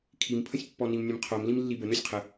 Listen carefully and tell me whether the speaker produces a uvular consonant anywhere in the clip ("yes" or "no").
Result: yes